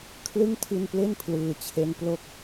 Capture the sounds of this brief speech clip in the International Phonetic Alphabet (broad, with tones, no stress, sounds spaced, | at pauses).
kʰ l ɯ˥˩ ŋ tʰ i˧ n p l e˥˩ n pʰ l ɯː˩˦ t͡ɕʰ e˦˥ n p l o˥˩ k̚